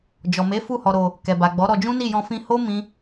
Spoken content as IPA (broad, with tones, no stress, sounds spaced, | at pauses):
d͡ʒ ɔ˨ m e˨˦ f u˦˨ h ɔ˧ ɾ o˧ | k ɛ˨ b a˨ ɡ͡b ɔ˨˦ ɾ ɔ˧ d͡ʒ ũ˦ n i˦˨ j ɔ̃˧ f ĩ˧ h o˦ m ĩ˦